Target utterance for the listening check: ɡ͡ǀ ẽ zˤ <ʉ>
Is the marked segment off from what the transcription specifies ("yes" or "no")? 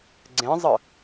yes